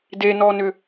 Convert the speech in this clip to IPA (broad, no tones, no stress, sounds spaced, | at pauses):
d e n ɔ n ʏ